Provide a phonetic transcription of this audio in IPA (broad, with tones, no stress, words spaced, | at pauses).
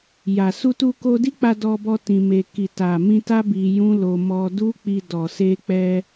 ja˨ su˧tu˧ ko˧di˦k͡pa˧ dɔ˧bɔ˧ tĩ˧me˧ ki˨ ta˨mĩ˧ta˦ bi˧jũ˦ lo˧mɔ˧ du˦k͡pi˧dɔ˨ se˧k͡pɛ˧